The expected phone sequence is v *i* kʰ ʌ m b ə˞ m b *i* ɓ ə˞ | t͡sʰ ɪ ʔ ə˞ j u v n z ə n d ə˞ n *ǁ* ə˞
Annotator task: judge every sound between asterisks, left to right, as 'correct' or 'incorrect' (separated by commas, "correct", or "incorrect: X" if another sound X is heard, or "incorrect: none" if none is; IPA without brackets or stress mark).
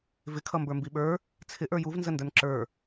incorrect: ɪ, correct, correct